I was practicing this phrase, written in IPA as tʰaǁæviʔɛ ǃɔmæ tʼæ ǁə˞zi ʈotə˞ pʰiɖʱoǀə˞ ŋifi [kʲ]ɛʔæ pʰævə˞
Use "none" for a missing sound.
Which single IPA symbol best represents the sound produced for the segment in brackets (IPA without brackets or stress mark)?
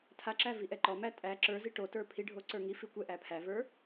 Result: kʷ